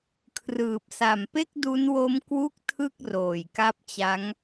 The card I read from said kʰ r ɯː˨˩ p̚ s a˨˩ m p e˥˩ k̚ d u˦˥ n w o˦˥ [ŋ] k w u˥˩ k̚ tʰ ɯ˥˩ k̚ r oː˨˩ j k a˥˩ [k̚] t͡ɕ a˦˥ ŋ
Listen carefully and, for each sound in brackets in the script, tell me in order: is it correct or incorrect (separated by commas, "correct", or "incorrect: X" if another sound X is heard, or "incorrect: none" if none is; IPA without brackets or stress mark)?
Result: incorrect: m, incorrect: p̚